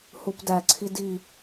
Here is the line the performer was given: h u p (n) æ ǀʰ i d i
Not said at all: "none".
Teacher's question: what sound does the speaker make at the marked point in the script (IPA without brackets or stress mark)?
d